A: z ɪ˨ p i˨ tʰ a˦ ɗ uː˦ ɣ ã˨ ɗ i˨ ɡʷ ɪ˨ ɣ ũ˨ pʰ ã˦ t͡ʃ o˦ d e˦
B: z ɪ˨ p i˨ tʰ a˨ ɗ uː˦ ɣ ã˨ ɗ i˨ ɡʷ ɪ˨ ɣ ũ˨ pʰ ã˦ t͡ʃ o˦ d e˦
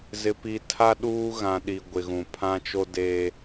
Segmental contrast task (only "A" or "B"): A